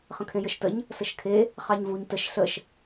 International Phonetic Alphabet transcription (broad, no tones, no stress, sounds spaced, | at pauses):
χ ə̃ kʰ ẽ j ə ʃ t ə ɲ | s ə ʃ kʰ e | χ ɑ ɲ v u ɲ t ə ʃ ɬ ə ʃ